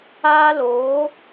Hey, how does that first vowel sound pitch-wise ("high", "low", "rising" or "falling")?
high